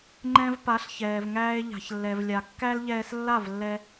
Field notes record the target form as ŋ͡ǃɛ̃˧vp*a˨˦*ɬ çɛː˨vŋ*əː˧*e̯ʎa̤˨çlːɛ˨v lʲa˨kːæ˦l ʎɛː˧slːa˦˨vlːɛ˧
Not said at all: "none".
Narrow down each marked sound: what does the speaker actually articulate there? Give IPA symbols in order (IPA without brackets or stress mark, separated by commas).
a˨˦, æː˧